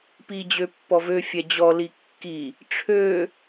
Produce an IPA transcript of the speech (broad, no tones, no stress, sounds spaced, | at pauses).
p i d͡ʑ ø pː ɔ v ø fʲ ɛ d͡ʑ ɔ l i kː i | ʈ͡ʂʰ ø